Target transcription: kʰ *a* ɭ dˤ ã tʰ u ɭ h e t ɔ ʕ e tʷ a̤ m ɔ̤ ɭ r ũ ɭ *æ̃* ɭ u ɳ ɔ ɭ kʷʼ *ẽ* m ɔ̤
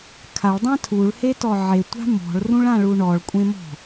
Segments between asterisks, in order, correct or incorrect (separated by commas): correct, incorrect, correct